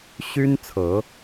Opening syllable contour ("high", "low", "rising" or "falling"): high